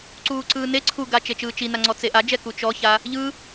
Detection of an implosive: absent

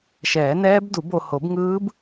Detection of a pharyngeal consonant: absent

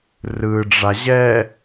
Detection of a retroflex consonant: present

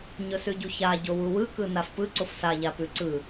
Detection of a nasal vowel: absent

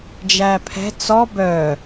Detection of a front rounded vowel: present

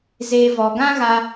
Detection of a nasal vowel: present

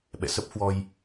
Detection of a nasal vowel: absent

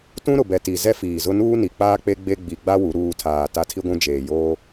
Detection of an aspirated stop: present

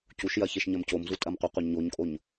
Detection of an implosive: absent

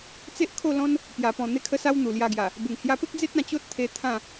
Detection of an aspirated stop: present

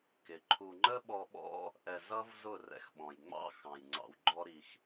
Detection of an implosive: present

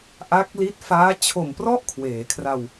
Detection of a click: absent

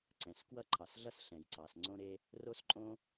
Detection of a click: present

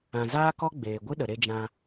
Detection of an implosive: present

